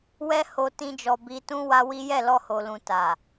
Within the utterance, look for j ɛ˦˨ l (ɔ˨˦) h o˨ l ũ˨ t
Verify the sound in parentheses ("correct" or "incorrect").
incorrect